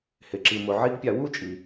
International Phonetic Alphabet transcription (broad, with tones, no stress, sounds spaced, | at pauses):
h ɪ˨ ǁ i˨ m ʊ˨ ʕ i˦ ɡ pʲ a˧ w u˦ t͡ʃʼ i˨